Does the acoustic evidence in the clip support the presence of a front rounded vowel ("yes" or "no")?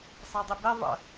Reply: no